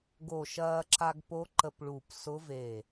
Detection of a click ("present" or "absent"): present